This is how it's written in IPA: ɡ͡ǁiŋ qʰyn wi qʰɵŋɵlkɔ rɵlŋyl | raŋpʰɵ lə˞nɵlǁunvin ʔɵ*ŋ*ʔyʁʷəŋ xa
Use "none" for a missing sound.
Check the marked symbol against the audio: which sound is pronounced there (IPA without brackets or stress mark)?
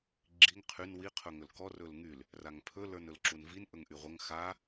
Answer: ŋ